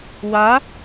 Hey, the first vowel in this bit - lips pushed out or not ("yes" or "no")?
no